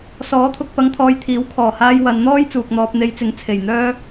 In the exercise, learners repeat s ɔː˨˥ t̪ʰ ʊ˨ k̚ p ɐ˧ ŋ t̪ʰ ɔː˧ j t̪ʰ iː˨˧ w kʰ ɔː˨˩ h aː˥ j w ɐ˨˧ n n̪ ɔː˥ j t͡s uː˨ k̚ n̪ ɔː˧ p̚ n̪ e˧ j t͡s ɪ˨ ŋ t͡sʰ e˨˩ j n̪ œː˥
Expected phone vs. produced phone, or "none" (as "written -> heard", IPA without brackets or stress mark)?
iː˨˧ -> iː˨˥